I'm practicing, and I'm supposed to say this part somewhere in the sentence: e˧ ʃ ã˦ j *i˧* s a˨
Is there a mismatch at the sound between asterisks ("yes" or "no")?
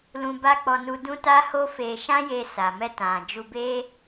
yes